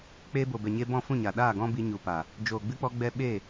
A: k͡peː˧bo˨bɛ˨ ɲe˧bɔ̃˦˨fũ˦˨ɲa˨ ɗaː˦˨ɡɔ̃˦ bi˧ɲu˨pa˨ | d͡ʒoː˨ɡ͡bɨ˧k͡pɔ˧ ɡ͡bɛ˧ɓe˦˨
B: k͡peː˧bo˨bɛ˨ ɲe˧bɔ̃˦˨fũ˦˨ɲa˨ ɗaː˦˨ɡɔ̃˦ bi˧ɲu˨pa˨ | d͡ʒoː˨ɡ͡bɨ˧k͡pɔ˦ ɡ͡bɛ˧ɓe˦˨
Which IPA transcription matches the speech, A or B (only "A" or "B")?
A